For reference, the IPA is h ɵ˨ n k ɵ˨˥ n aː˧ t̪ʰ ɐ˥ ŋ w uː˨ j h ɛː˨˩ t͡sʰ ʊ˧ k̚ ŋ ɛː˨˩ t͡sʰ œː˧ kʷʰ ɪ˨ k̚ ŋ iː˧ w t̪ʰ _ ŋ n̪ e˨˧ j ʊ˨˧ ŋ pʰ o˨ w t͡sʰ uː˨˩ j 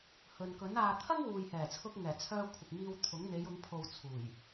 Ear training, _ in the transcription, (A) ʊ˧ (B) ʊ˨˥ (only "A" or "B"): B